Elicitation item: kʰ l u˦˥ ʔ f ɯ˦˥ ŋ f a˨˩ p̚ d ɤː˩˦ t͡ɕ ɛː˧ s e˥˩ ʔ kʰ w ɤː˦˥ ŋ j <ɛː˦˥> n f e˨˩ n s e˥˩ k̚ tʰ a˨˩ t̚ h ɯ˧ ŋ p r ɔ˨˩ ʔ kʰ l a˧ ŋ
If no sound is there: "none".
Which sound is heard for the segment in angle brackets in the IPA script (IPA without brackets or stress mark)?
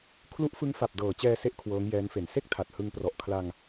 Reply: ɛː˦˥